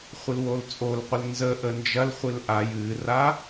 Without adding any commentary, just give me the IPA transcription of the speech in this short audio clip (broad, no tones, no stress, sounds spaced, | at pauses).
χʷ ɨ l w o l t͡sʼ o l qʷ ə l n z ə ʔ ə n d͡ʒ ɐ l χʷ ɨ l ʔ a j ɨ r a